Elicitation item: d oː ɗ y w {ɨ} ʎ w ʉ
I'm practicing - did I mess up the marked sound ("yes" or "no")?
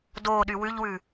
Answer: yes